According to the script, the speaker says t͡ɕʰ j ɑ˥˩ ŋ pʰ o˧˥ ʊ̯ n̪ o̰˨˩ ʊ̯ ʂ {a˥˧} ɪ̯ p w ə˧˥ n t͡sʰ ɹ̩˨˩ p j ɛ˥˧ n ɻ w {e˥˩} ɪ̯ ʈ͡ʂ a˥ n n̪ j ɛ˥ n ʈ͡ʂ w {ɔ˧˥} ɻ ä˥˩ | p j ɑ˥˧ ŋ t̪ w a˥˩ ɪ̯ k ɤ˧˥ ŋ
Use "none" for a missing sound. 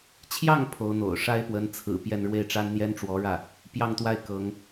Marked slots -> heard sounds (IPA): a˥, e˥˩, ɔ˧˥

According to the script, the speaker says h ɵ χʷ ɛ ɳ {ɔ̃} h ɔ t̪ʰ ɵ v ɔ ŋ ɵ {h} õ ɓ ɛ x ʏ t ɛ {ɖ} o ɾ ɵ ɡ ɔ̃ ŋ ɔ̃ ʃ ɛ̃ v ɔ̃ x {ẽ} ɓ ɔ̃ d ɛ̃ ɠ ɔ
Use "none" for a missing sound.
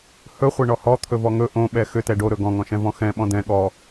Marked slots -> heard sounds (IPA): ɔ, ʔ, ɖ, ɛ̃

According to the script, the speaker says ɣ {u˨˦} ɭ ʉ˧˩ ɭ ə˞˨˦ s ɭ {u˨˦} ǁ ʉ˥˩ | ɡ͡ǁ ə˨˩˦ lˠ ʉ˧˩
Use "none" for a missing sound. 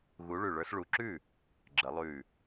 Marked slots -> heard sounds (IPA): u˨˦, u˨˦

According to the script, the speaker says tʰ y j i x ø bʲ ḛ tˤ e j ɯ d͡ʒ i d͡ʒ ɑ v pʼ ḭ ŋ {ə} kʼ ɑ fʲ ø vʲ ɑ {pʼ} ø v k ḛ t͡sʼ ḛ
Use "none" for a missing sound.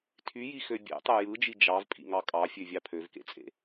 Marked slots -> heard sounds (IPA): ɑ, pʰ

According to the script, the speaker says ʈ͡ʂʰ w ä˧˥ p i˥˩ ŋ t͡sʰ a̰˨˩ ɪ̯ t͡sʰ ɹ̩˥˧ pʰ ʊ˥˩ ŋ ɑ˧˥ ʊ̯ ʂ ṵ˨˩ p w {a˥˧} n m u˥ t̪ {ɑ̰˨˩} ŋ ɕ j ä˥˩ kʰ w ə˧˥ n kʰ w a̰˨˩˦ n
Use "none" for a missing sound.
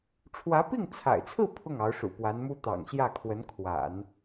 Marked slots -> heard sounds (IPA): a˧˥, ɑ̰˨˩

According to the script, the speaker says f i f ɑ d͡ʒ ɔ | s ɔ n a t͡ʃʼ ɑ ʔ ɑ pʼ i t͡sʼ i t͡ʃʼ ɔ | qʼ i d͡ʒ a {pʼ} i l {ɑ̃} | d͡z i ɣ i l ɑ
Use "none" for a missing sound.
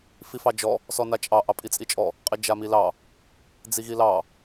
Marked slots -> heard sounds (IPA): m, ɑ

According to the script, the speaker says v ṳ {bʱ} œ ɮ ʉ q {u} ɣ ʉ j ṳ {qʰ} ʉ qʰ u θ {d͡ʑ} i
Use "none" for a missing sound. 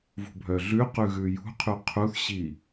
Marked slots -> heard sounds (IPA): bʱ, ʉ, qʰ, ɕ

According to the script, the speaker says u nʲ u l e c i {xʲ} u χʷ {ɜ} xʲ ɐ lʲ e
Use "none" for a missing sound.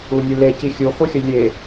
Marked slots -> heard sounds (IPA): xʲ, ɜ

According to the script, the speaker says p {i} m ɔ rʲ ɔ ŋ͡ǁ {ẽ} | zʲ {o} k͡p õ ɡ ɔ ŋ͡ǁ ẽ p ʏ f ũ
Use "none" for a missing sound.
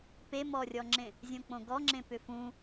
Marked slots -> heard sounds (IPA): e, ẽ, õ

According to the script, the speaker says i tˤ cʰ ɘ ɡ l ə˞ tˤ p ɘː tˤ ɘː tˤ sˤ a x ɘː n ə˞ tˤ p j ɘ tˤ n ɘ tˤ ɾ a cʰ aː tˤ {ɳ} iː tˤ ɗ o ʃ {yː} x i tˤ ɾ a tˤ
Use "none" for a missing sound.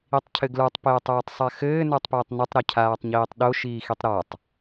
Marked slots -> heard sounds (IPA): ɲ, iː

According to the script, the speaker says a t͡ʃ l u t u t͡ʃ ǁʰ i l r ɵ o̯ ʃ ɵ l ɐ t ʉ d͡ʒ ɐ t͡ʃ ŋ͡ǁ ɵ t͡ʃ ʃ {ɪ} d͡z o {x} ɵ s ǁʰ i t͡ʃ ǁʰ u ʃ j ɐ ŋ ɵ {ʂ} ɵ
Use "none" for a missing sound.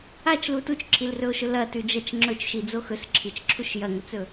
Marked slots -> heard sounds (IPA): i, x, t͡s

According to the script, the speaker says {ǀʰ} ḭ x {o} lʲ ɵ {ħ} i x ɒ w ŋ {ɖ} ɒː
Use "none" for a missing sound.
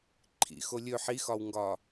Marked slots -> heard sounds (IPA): ǃʰ, o, ħ, ɡ

